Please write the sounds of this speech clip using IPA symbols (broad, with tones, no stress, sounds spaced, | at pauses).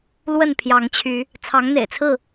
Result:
l w ə˥˨ n pʰ j ɑ˨˦ ŋ t͡ɕʰ y˨˦ | t͡sʰ ɑ˨˦ ŋ n̪ ḛ˨˩ ɪ̯ t͡sʰ ɹ̩˥˨